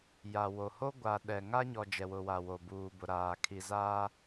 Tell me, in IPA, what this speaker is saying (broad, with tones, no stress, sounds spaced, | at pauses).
j a˨ w o˨ h o˦ ɡʷ a˨ ɗ ɛ˨ ŋ a˦ ɲ ɔ˨ d͡ʒ ɛ˨ w ʊ˨ w a˨ w o˨ b uː˨ b ʊ˨ ɾ aː˨ kʰ i˨ z aː˦